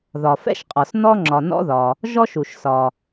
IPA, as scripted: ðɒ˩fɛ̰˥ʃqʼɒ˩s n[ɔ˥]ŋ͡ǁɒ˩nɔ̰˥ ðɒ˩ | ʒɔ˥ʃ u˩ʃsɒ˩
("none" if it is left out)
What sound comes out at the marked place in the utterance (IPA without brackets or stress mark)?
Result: ɔ˥